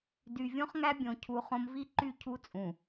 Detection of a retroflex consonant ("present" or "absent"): absent